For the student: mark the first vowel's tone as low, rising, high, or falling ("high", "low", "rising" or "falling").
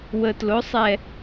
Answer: low